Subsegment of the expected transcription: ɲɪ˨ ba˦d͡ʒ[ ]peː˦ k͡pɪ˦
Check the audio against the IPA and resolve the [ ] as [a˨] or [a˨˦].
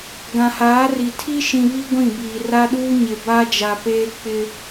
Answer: a˨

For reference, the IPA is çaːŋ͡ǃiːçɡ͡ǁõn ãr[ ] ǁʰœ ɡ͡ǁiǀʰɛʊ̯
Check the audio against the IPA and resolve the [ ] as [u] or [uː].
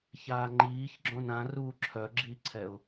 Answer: uː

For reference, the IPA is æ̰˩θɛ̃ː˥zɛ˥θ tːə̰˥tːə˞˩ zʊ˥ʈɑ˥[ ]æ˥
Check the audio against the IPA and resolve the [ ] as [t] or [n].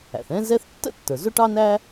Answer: n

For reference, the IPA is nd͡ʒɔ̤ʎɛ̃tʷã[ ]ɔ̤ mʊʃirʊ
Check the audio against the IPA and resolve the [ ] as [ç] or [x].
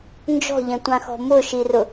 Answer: x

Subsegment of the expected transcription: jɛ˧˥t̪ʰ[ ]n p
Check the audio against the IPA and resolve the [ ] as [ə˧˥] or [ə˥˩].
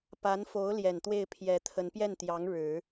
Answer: ə˧˥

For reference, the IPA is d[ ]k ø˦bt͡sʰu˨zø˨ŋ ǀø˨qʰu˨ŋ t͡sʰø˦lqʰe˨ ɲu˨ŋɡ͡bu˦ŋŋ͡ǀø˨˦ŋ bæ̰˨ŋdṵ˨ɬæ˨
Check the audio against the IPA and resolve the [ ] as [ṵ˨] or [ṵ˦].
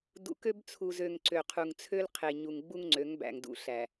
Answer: ṵ˨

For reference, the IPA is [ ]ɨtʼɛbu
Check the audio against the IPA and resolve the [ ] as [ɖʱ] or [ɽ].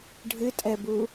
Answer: ɖʱ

